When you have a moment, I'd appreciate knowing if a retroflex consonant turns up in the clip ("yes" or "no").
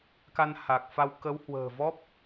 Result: no